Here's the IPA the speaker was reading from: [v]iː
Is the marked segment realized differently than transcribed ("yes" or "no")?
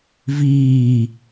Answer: no